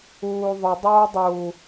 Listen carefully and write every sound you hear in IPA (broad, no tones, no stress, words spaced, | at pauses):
uːðˤɘ dˤoːdˤuː